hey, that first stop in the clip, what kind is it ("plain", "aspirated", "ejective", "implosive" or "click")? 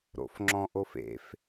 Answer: click